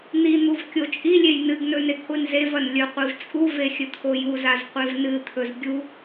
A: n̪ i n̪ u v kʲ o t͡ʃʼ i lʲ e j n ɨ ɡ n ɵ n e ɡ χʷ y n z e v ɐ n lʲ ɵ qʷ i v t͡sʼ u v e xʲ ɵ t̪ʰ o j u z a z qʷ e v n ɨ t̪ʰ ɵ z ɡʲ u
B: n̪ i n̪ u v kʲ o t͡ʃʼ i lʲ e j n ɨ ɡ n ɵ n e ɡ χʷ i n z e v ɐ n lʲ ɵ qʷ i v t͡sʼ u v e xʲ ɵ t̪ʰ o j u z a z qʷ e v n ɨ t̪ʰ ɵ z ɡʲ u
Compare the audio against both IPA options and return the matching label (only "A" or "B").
B